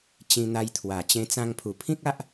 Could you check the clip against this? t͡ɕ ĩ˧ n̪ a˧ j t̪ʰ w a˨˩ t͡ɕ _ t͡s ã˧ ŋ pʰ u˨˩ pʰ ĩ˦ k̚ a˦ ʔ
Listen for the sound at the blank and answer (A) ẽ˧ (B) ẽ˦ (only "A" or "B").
A